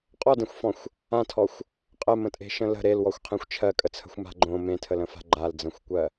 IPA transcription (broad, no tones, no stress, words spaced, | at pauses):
qʼɔdẽxʷfɔ̃xʷ | ãtʰɔxʷ | qʼɜmə̃tʼe̤ʃə̃ lə̤ ɾelwɔxʷqʰẽxʷ t͡ʃʰɜkʼət͡sʰə̤xʷma̤ ɡ͡ǃõ mẽtʰələ̃fa̤ ɡ͡ǃald͡zə̃xʷkʷɜ